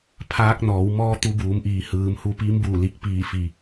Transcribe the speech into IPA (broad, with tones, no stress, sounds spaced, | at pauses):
pʰ aː˧˥ k̚ n ɔː˩˧ w m ɔː˧˥ t̪ u˧ b uː˩˧ m ʔ iː˩ h ɯː˩˧ m h u˧ p i˧˥ m b u˧˩ l i˧˩ k̚ p iː˧˩ f i˩